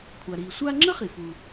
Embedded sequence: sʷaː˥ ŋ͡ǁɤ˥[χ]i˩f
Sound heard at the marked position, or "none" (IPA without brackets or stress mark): χ